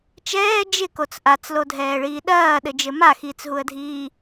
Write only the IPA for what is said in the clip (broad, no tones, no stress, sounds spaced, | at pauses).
t͡ʃ ɛː d͡ʒ ɪ k o t͡s ʔ a t͡s l o dʱ ɛː ɭ iː ɗ ɐː ɗ ɘ d͡ʒ ɘ m a x iː t͡s ɦ u ə̯ dʱ iː